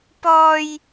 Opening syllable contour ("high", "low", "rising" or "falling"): high